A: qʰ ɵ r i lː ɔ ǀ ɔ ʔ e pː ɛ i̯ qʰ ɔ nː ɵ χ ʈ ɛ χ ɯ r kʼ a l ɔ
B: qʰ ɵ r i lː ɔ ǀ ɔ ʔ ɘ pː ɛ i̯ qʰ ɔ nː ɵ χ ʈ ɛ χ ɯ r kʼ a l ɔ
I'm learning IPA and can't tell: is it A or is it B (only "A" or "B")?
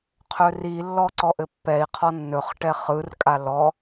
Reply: B